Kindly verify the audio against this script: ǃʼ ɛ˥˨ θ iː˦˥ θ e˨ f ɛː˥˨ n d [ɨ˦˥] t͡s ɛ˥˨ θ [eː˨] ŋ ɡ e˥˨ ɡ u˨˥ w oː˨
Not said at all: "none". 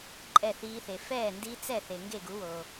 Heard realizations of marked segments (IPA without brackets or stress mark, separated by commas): i˦˥, e˨